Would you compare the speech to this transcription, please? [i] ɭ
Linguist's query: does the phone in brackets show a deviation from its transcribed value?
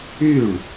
yes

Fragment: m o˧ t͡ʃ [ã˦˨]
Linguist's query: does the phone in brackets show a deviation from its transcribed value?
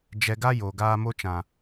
yes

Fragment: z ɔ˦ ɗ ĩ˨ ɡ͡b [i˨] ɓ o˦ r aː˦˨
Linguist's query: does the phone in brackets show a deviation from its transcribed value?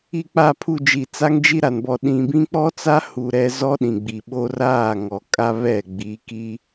no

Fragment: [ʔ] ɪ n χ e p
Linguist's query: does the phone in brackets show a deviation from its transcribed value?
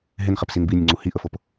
yes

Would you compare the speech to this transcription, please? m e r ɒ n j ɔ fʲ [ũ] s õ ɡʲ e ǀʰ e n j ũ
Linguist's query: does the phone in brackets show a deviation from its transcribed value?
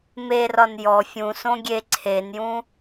no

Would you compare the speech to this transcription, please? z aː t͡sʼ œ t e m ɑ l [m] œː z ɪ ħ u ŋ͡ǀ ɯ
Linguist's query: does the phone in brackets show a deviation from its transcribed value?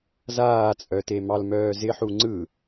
no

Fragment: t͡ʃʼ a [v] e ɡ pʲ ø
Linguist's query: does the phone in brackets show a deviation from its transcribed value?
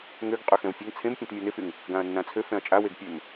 yes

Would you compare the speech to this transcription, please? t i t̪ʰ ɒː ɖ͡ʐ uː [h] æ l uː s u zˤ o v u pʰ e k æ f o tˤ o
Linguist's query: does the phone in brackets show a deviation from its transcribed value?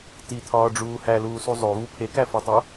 no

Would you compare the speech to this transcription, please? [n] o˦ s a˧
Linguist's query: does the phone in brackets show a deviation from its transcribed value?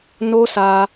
no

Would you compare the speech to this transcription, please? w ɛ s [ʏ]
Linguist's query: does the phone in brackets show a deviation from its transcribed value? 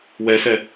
yes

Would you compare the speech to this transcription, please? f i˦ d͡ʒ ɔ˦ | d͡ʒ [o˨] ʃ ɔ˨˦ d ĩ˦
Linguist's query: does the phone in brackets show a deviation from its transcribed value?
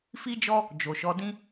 no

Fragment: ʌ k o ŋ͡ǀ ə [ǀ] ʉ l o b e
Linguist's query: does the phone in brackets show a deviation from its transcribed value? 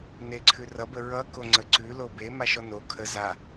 no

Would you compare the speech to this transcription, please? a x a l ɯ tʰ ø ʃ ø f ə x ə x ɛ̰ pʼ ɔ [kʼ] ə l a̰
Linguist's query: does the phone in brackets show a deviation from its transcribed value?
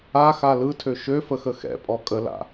no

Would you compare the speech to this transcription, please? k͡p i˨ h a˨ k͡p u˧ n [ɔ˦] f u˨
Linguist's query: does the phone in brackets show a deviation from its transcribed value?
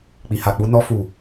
yes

